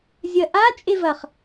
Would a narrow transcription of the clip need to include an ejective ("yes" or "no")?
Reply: yes